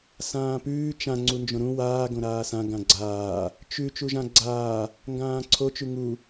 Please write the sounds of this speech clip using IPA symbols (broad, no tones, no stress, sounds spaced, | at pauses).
s ãː p ʉː t͡ʃ ã ŋ͡ǀ u n d͡ʒ õ ɾ ũ w aː ɡ õ ɾ aː s ã ɡ ã ɡ͡ǀ aː | t͡ʃ ʉ t͡ʃ u ʒ ã ɡ͡ǀ aː | ŋ ɡ ãː ǀʰ o t͡ʃ ʉ ŋ u